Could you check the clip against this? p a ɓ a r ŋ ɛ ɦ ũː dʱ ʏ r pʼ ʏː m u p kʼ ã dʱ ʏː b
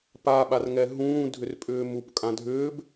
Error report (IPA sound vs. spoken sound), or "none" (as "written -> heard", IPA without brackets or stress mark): none